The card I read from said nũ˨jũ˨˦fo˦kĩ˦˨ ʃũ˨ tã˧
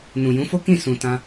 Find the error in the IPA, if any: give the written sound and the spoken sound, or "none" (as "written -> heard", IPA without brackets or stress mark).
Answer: ʃ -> s